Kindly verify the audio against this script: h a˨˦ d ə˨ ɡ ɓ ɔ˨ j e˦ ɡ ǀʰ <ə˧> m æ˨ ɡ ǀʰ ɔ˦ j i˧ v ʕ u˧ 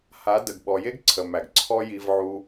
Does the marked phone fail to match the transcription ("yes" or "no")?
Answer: yes